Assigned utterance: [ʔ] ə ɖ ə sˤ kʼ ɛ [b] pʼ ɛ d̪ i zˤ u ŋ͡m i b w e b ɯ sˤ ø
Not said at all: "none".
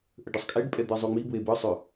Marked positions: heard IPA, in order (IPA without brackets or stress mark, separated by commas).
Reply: ʔ, ɖ